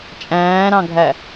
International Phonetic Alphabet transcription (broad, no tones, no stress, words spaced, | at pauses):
t͡ʃʼæ̃ːɾɑ̃ɡʱæ